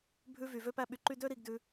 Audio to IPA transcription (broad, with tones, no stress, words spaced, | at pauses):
bʱʉ˧vy˨ vø˦pæ˦ɓy˧ǃy˦ dø˦ɾi˧ɡdʉ˧